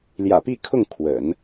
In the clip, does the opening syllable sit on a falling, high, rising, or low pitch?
low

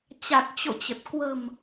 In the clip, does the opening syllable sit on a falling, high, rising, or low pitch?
low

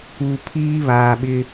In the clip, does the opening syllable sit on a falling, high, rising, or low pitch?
low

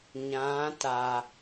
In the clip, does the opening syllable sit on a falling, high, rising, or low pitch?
rising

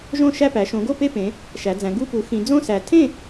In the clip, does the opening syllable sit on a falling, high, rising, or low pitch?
falling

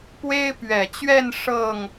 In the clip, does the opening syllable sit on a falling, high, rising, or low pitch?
high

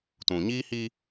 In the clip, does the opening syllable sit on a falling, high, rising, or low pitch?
low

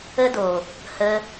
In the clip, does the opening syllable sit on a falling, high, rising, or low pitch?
high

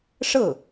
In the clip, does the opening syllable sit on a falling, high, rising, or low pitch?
falling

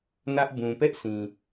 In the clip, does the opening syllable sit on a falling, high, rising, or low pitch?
high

